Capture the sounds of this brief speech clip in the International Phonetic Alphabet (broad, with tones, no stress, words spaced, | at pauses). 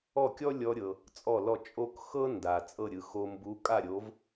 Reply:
ɔ˥˩kʲɔ˥lʲɔ˧ɾʲɤ˩ | t͡sʼɔ˥˩lɔ˥˩ t͡ʃʼo˥k xɤ˥ nda˩ t͡sʼɤ˥˩ɾʲɯ˩xo˧ mbu˩˥ kʼa˥˩ɾʲo˩˥v